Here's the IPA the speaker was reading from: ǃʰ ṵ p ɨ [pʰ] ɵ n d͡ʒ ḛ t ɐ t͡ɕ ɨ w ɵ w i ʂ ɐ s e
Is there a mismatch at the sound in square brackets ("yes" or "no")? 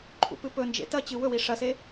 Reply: yes